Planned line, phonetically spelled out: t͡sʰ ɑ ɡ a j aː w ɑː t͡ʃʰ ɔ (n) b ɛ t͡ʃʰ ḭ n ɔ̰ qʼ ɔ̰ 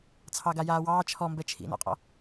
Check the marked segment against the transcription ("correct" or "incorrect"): incorrect